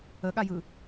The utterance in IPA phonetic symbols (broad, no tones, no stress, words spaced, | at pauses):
əɠajɯ